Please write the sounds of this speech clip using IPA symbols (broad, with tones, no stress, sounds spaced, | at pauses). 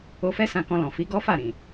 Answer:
o˧ f ɛ˦ s ã˧ k ɔ̃˧ l ɔ̃˨ f i˨˦ ɡ ɔ˦ f a˦˨ ɾ ĩ˨